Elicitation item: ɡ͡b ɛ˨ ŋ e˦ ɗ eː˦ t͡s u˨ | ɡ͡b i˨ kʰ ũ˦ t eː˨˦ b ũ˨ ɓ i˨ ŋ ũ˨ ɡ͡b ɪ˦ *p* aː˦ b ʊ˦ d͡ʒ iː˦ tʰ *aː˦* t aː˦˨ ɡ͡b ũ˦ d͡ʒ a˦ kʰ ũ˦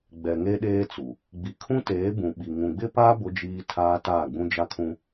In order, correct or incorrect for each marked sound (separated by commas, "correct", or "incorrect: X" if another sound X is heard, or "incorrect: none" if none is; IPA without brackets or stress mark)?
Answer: correct, correct